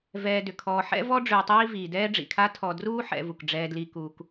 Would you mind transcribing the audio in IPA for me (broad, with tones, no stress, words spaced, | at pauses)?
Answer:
vɛː˨dʏ˩ kʰɔː˨ħɛ̰˥ vɔ˥ɖ͡ʐʏː˨tˤiː˦ viː˩dɛː˦ɖ͡ʐḭ˩kʰa˦ tʰɔ˨ druː˦ħɛ̰˨vu˩k ɖ͡ʐɛː˨dli˨ kuː˨k